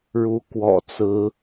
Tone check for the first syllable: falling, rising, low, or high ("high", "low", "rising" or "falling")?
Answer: rising